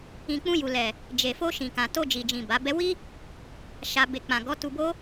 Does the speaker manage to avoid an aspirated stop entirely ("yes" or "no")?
yes